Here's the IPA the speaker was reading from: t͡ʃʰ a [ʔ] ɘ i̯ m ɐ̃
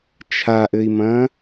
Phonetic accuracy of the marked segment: correct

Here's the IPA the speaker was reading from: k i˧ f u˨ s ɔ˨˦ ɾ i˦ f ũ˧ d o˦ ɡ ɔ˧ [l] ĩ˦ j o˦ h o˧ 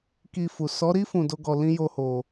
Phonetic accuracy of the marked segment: correct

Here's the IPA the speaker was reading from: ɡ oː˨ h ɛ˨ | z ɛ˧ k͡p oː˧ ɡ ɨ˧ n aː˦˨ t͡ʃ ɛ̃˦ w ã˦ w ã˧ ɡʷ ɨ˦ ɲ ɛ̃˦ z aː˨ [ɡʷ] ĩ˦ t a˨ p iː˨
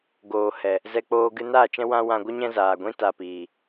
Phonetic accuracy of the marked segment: correct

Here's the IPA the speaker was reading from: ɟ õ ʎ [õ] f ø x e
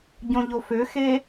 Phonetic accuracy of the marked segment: incorrect: o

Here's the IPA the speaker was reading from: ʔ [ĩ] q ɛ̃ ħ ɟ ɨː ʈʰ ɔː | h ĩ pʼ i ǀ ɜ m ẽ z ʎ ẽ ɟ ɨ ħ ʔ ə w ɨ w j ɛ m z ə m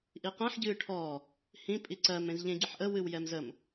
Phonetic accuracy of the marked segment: incorrect: i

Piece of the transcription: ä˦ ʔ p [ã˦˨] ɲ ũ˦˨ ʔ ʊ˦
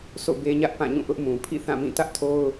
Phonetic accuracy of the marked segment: correct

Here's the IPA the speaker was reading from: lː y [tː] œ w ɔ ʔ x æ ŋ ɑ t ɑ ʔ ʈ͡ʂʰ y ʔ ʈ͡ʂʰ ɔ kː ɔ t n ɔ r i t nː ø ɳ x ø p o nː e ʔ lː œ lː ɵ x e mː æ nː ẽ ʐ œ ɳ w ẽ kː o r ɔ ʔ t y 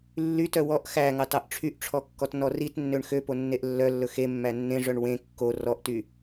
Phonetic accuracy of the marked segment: incorrect: t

